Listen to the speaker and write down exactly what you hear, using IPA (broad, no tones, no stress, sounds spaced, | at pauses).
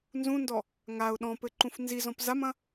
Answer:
n z ũ n d ɔ | ŋ a ʊ̯ ɗ ɔ̃ p ɘ ǃ ũ f n z i z ɔ̃ p z a m ɐ̃